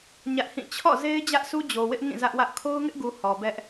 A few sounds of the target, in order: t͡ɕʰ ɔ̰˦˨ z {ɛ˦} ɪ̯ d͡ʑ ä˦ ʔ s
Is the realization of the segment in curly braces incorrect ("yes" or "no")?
yes